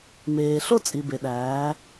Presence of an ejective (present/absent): present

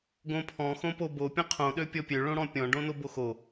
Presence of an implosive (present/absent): present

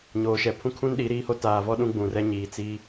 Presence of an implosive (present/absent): present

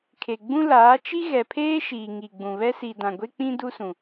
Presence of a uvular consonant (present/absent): absent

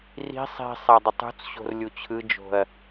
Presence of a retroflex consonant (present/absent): absent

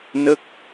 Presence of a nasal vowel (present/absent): absent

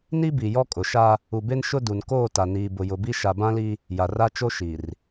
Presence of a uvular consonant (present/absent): absent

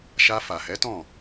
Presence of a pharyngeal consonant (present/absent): absent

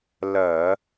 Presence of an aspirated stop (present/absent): absent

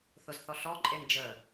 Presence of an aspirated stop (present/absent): absent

